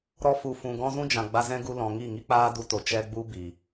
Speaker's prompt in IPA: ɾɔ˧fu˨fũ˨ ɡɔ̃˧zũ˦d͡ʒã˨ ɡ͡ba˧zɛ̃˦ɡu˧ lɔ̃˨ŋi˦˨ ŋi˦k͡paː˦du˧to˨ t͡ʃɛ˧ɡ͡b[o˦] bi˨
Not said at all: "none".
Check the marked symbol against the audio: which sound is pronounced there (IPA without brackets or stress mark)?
u˦